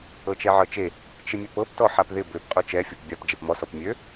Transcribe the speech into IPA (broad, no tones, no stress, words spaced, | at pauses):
ɤt͡ʃɛʕɤt͡ʃe | t͡ʃɪmʲøpɤp tɔħapðɪ bøp qʼot͡ʃɛ fʲopbʲɑp d͡ʒɛpmɔ sɔpmʲø